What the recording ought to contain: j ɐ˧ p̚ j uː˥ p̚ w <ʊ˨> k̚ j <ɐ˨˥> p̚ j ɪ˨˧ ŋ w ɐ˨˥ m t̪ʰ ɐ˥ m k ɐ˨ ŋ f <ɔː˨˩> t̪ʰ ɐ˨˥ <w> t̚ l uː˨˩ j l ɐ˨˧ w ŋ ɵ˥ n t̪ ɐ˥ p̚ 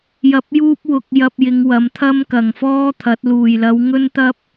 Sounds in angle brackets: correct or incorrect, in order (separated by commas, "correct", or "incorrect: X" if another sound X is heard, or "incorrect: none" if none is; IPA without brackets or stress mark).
incorrect: ʊ˧, incorrect: ɐ˧, incorrect: ɔː˥, incorrect: none